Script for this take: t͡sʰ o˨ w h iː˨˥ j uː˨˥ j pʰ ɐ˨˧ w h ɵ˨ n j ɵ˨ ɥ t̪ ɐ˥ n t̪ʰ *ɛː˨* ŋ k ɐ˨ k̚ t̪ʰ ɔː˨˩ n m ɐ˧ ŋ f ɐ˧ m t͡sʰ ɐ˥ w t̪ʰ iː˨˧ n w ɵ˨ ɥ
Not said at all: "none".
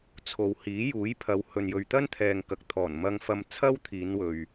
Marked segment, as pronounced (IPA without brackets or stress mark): ɛː˨